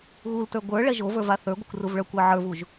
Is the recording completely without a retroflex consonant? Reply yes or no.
no